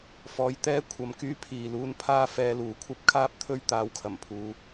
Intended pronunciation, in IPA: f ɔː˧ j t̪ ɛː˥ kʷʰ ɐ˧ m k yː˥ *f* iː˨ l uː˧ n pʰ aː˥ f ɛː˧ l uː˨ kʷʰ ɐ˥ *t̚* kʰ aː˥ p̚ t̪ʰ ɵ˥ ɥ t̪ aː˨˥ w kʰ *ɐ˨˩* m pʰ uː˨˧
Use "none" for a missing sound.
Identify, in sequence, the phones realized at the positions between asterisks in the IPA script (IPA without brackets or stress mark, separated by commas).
pʰ, p̚, ɐ˨˩